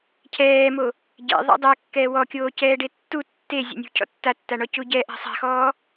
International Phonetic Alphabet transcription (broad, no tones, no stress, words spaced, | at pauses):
cʰɛːmo | ɟɛ̰ ðˤɛ̰dˤɛ kːɛːwɔkʲoː cɛːɖetːu tːe zʲɛ̰nʲṳ cʰɔ̰tːatːaɳɔ cuɟɛʔa̤ sˤa̤xɔː